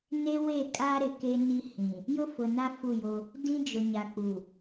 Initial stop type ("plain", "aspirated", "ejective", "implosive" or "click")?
ejective